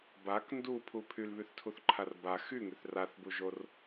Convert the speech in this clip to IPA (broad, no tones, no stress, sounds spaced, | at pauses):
b a k n d u pʰ u pʰ y l β y θ tʰ u θ ǃʰ a r b a x y ŋ y θ r a θ b u ʒ o r